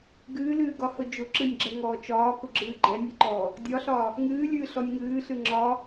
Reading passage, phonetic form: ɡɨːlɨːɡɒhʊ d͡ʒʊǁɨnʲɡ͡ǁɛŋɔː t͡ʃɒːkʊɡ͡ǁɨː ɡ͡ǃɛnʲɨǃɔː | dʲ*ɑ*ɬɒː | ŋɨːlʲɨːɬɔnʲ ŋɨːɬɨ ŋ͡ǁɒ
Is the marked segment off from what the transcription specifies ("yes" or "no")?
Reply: yes